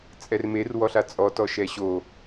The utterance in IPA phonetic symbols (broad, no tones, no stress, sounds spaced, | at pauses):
t͡sʼ ɛ r m e r w ɔ ɬ a t͡sʼ ɔ t ɔ ʃ ɛ ɕ o